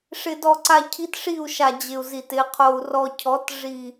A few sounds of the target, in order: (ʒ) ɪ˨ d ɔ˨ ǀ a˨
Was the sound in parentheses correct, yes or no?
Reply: no